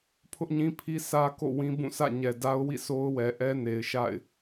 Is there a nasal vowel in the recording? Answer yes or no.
yes